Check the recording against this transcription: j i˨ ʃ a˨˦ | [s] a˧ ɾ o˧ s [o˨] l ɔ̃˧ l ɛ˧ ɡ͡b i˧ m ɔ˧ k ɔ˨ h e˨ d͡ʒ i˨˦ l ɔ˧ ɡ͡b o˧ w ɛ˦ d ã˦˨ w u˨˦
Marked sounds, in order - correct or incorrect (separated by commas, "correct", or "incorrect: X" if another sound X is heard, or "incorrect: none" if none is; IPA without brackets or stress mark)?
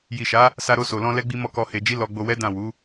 correct, correct